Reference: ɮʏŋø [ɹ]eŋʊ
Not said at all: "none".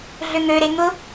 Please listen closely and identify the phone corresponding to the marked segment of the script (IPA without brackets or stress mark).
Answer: ɾ